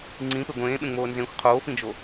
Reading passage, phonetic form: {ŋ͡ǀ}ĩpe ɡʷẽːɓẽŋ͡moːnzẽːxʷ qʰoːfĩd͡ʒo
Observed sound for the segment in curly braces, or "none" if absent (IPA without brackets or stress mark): ŋ͡ǀ